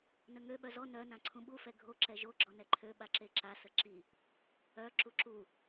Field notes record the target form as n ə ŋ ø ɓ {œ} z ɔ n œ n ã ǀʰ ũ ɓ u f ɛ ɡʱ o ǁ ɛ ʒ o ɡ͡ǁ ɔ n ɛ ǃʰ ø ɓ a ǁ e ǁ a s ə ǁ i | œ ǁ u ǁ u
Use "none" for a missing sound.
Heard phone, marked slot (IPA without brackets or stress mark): œ